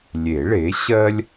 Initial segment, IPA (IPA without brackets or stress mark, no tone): lʲ